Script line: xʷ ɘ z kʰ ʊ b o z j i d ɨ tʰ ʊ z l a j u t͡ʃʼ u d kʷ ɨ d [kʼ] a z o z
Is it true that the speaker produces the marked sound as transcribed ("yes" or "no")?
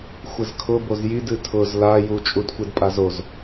no